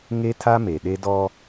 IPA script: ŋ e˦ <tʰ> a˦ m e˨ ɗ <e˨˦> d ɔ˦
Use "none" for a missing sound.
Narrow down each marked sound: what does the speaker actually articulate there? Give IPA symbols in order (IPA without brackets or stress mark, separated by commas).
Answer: tʰ, e˦